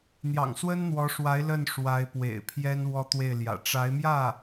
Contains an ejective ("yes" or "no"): no